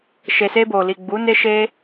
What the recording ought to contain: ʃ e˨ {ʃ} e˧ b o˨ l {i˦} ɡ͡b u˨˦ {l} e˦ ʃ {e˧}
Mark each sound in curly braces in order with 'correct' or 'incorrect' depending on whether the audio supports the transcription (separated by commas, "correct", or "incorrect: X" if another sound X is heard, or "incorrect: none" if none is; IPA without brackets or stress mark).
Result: incorrect: s, incorrect: i˨, incorrect: n, correct